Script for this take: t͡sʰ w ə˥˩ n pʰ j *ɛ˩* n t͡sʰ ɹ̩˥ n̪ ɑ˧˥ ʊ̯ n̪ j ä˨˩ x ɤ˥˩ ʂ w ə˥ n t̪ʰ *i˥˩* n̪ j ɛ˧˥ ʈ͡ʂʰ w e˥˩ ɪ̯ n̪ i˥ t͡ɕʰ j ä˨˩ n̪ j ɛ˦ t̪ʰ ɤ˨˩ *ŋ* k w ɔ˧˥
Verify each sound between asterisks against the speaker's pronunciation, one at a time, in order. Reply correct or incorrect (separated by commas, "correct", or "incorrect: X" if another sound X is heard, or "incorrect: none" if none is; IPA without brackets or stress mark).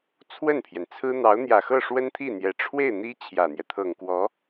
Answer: correct, correct, correct